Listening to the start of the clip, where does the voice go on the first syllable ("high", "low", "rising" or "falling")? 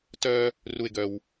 high